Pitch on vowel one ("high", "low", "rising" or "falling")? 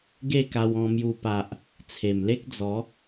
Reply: falling